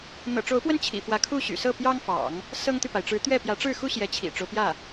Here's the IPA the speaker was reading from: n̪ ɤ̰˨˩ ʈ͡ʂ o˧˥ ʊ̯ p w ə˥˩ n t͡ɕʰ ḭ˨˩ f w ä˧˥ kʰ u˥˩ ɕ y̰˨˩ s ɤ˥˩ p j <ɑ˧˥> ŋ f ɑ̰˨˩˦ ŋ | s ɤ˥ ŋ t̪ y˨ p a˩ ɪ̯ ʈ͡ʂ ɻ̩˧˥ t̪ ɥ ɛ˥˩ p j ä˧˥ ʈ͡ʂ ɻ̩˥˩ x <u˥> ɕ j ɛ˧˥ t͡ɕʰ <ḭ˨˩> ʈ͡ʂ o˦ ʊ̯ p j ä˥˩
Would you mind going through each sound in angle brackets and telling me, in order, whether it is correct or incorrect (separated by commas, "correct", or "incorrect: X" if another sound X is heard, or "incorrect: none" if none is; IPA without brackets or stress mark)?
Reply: incorrect: ɑ˥, correct, correct